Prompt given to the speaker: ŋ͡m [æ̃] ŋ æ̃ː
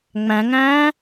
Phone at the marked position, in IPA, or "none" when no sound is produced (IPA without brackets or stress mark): æ̃